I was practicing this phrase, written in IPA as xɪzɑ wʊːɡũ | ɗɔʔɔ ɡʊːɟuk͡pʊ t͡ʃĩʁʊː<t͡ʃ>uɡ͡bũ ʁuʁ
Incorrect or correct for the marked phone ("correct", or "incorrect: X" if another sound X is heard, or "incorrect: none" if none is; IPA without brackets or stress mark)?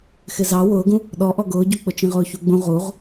incorrect: ç